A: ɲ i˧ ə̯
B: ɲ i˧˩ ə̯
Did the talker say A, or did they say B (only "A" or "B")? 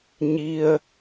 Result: A